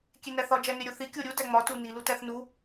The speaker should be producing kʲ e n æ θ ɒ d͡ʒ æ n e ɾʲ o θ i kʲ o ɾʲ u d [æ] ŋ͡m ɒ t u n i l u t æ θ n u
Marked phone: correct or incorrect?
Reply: correct